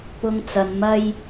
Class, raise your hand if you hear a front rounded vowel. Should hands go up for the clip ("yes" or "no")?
no